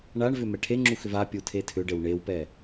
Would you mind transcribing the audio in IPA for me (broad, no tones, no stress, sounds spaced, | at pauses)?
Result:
ɳ a ɳ v ʏ m ɛ ʈʰ e ŋ͡ǁ u x ʏ v a pʲ u tʰ e tʰ ʏ ɖ ɘ w ɳ e w p ɛ